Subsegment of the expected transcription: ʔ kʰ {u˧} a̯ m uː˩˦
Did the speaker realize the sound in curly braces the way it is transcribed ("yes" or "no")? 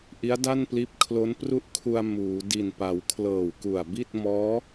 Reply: yes